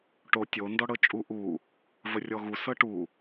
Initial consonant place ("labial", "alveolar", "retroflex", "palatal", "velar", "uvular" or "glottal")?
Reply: retroflex